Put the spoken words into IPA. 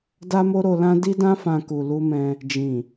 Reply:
d a˦ m o˦ ɾ o˧ l ã˦ d i˧ d ã˧ f ã˨ k u˨ l u˧ m ɛ̃˧ | d͡ʒ ĩ˨

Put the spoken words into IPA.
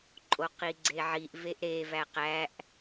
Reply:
ǃʼ o q i ɡ͡ǀ e ʕ i ʔ v e ʔ ɾ e v æ q æ ʔ

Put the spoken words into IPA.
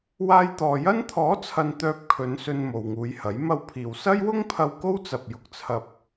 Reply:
w aː˧ j t̪ ɔː˨ j ɐ˥ n t̪ʰ ɔː˨˥ t͡sʰ ɐ˨ n t̪ œː˧ p̚ kʰ ɵ˨˧ n s ɵ˧ n m o˨ w ŋ uː˨˧ j h ɐ˨˥ j m ɐ˧ w pʰ iː˨ w s ɐ˥ j w ʊ˥ ŋ pʰ ɐ˧ w k o˥ w t͡s ɐ˨ p̚ j ʊ˨ k̚ t͡sʰ ɐ˧ p̚

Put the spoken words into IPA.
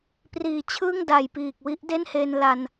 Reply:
p r iː˨˩ t͡ɕʰ ɯː˥˩ ŋ d a˨˩ j p iː˨˩ k̚ w i˦˥ ʔ d e˥˩ n h e˧ n l a˧ n

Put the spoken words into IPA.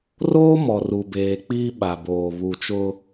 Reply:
r oː˦ m ɔ˨ r u˨ b eː˨ k͡p iː˦ ɓ a˨ b oː˨ β u˨ t͡ʃ ʊ˦

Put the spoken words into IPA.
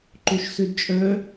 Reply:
ǃ o ʃ s ø d t͡ʃʼ œ

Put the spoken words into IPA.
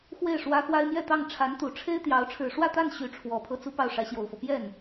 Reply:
x w e˥˩ ɪ̯ ʂ w ä˥ x w a˥ ɪ̯ m j ɛ˥˧ t̪ ɑ˥˩ ŋ ʈ͡ʂʰ a˧˥ n t̪ u˨˩ ʈ͡ʂʰ e˥ ɪ̯ t̪ j ɑ˧˥ ʊ̯ ʈ͡ʂʰ ɻ̩˨˩ ʂ w ä˥˧ t̪ a˥˩ n ɕ y˧˥ ʈ͡ʂʰ w ɔ˨˩ pʰ ɤ˥ t͡s u˥ p ɑ˥˩ ʊ̯ ʂ ä˧˥ ɕ j o˨˩ ʊ̯ f ɤ˦ p j ɛ˥˩ n

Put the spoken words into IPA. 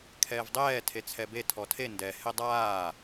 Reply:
kʰ ɛː v dˤ ɛː tʰ e t͡sʰ ɛ b e tʰ ɔ tʰ e n d ɛ h e dˤ aː

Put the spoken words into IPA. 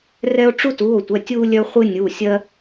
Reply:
r ɛ˥ o̯ ʈ͡ʂ u˥ t u˩˧˩ o̯ tʷ ɛ˩˧˩ tʲ u˥ lʲ œ˥ χʷ ɨ˥ nʲ u˩˧˩ sʲ ɜ˥

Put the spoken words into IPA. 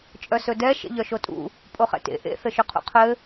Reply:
t͡ʃʼ œ s ɵ d ɛ ʃ ḛ ʎ œ ʃ o tʼ ṵ | pʼ o χ ɛ̰ t ḛ ʔ ḛ θ ɘ ʃ ɵ qʰ ṵ qʰ ɘ

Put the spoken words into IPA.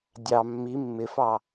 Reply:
dʲ ɑ mː i mː ɪ f ɑ

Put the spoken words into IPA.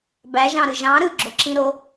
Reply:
b æ ʒ ɑ̃ ɾ ɯ ʒ ɑ̃ ɾ ɯ ɡ͡ǁ o ǁ ĩ ɾ o

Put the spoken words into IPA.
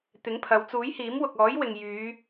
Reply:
t̪ ɪ˨˥ ŋ pʰ ɐ˨˧ w t͡s uː˨˥ j h iː˨˥ m w ʊ˨ k̚ ɔː˨˥ j w ɪ˨ ŋ j yː˨˧

